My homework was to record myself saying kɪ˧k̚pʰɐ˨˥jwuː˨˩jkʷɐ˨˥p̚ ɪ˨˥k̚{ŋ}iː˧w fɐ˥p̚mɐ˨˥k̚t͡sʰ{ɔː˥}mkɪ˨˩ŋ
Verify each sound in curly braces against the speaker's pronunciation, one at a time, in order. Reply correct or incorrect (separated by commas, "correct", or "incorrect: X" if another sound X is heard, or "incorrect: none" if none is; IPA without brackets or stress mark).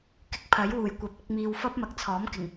incorrect: m, incorrect: ɔː˨˥